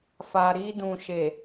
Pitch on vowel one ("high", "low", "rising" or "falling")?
low